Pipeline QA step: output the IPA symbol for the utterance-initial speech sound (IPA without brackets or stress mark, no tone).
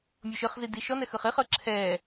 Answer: mʲ